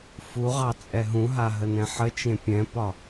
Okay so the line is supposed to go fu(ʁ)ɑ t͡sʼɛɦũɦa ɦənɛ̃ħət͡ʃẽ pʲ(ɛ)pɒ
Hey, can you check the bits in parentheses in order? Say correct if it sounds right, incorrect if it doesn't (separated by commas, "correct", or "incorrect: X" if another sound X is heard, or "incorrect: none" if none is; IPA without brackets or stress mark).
correct, incorrect: ɛ̃